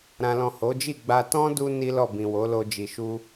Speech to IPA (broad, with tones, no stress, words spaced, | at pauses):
ɾã˨lɔ̃˨ ho˨˦d͡ʒi˦˨ɡ͡ba˧ tɔ̃˦du˧ ni˦lɔ˦˨ bĩ˨wo˨˦ lo˧d͡ʒi˨ʃu˧